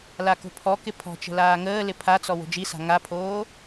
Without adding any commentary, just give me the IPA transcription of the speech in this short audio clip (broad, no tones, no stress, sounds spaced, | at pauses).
l a k o̤ pʰ ɔ k ɪ pʰ ɔ̤ t͡ʃ ə̤ l aː ŋ əː l ɪ pʰ a t͡s ɔ w o̤ d͡ʒ i s a̤ ŋ a pʰ oː